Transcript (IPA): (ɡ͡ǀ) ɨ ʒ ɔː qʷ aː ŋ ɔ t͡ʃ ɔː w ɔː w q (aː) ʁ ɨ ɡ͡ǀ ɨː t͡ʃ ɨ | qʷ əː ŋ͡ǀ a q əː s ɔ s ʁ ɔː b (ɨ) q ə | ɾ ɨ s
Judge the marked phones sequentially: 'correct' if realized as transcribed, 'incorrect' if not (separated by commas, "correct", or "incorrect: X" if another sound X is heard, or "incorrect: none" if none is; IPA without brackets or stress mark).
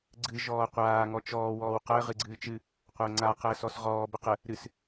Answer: correct, incorrect: əː, incorrect: ə